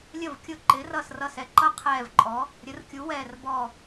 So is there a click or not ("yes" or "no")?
yes